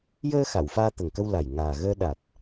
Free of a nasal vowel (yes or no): yes